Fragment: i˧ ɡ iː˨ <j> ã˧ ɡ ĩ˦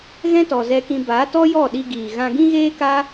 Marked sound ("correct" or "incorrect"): incorrect